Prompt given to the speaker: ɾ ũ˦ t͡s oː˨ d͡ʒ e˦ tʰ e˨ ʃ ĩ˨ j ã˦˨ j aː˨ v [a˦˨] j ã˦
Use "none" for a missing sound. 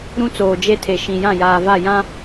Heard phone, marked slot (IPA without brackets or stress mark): a˦˨